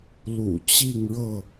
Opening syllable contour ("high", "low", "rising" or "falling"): low